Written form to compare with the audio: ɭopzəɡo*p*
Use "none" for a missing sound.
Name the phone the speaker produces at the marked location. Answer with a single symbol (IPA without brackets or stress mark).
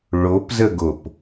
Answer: p